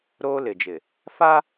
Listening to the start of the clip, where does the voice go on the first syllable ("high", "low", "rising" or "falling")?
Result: high